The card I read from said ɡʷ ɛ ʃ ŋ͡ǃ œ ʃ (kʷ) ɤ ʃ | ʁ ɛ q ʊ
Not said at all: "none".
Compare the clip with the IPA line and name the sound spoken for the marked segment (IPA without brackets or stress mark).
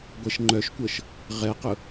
kʷ